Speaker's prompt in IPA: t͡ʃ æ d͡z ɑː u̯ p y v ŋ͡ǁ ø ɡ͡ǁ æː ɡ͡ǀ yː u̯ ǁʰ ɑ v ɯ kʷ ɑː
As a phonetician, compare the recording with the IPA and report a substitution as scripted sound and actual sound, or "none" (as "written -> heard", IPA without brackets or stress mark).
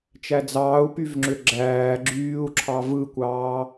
ɡ͡ǀ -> ɡ͡ǁ